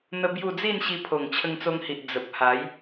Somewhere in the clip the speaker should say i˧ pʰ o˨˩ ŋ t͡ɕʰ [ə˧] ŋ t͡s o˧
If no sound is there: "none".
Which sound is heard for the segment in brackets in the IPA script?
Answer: ə˧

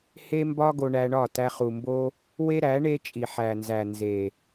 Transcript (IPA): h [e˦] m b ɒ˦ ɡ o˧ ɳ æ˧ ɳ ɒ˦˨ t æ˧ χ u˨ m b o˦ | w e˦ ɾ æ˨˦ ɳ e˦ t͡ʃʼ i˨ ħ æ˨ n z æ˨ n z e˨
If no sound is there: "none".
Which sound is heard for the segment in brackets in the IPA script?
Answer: e˦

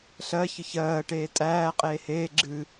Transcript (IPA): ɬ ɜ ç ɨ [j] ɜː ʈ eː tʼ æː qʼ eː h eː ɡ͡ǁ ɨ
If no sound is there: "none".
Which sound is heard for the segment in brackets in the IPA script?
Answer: ç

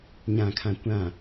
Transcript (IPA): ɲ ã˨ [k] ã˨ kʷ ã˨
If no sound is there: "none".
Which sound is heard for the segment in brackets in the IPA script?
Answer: kʰ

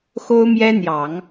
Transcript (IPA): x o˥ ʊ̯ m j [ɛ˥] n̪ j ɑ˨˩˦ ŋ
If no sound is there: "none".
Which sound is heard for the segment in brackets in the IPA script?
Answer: ɛ˥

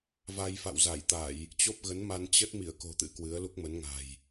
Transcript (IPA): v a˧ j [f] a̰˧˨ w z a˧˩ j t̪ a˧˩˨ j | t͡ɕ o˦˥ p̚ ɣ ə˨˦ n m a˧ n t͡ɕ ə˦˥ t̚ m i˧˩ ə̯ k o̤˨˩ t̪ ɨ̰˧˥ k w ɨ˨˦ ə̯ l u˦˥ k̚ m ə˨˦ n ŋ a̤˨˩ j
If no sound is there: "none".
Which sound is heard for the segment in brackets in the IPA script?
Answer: f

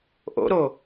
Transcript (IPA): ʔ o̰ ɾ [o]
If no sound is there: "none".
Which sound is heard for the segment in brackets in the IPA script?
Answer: o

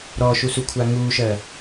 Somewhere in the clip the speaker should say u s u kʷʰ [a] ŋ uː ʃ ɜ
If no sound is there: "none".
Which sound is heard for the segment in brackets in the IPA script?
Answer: a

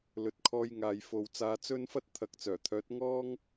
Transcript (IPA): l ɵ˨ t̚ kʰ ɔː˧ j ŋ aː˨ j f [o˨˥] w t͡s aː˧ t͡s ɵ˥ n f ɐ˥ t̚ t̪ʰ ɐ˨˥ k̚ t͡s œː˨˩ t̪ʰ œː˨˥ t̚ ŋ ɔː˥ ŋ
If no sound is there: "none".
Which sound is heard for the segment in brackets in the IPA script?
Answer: o˨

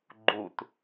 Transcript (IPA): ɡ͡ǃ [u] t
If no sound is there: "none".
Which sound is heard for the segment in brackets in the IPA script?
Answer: u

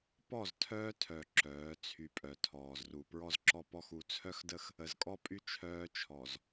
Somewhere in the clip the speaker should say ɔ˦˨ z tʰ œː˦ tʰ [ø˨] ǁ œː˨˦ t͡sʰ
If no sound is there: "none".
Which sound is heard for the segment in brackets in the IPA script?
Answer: œ˨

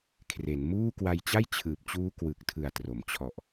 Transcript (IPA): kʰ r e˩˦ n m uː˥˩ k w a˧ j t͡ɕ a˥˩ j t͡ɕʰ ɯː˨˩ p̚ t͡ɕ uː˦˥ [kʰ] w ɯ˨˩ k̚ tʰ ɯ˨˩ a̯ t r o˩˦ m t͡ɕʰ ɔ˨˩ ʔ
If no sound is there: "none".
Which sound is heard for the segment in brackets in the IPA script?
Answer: k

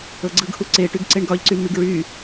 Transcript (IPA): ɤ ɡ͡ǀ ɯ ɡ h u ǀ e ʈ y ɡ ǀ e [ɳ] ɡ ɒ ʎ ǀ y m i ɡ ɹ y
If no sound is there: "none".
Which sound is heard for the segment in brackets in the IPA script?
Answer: ɳ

